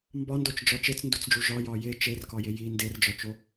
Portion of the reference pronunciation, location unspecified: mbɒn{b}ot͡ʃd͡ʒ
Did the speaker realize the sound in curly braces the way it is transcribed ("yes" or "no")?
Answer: no